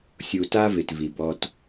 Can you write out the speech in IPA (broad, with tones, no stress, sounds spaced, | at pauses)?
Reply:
sʲ u˨ t a˦ v ɪ˨ t v i˨ b ɔ˦ t